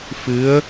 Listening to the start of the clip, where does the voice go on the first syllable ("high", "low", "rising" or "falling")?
rising